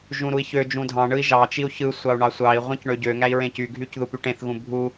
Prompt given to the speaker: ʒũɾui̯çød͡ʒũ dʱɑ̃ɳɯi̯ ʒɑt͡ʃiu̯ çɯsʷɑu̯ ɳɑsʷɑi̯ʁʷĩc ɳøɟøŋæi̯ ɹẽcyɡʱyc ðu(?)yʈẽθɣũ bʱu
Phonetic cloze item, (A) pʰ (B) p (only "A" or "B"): B